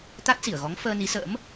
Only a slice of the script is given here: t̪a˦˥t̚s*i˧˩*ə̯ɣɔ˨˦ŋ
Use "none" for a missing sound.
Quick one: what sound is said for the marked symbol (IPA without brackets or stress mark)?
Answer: i˧˩